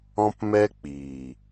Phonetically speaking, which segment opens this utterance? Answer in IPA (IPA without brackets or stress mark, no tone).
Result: ɔ̃